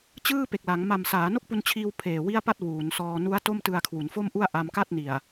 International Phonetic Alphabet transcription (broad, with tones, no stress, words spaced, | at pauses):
t͡ɕɯː˥˩pe˨˩k̚la˩˦ŋ ma˨˩msaː˩˦ no˥˩k̚pu˧nt͡ɕʰiː˧w pʰeː˨˩wi˥˩a̯pa˥˩t̚ wuː˩˦nsɔː˧ nu˦˥a̯ to˥˩mtɯ˧a̯kʰwu˩˦n fo˥˩mʔu˥˩a̯ʔa˧m ka˥˩t̚ni˨˩a̯